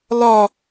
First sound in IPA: l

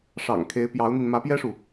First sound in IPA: ʂ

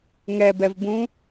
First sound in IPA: ŋ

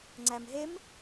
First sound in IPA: ŋ͡ǀ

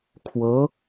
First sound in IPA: kʰ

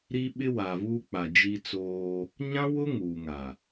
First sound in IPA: ɾ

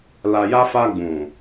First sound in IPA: l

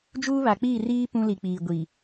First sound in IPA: d͡ʒ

